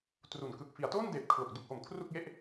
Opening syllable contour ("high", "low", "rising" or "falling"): low